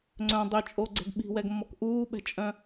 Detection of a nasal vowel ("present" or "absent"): present